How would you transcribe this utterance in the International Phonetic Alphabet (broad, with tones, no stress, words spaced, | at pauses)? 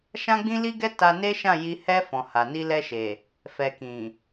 ʃã˦ɡ͡bĩ˦li˦ɡɛ˦ ta˧ne˦ʃã˦˨ji˧ hɛ˧ fɔ̃˨ha˨ ni˧lɛ˧ʃe˨ | fɛ˨kĩ˨